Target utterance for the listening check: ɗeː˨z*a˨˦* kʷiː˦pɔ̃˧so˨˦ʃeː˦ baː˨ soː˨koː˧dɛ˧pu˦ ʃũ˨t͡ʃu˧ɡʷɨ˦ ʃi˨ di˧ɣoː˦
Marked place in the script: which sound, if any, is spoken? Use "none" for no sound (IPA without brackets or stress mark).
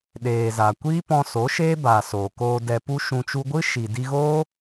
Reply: a˨